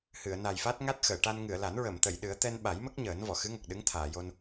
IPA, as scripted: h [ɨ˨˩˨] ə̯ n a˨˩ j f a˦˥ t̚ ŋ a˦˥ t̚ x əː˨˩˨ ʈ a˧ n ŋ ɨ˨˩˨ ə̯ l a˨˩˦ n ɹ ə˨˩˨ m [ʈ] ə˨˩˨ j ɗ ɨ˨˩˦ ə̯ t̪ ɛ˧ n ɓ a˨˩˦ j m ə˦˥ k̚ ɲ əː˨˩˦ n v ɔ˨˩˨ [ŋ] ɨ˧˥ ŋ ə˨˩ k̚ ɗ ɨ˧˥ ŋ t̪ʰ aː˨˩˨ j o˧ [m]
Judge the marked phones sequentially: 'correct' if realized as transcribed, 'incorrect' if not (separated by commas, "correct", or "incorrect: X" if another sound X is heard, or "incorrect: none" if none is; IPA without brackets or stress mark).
correct, incorrect: t̪, incorrect: x, incorrect: n